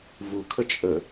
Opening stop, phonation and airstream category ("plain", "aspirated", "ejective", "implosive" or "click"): aspirated